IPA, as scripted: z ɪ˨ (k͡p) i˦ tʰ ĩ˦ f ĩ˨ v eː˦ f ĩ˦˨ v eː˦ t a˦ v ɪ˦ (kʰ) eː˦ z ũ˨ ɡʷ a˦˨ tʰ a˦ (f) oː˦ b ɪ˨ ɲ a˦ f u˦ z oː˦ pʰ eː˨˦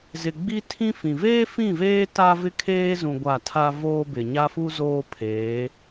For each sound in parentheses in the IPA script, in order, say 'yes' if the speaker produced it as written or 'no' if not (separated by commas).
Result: no, yes, no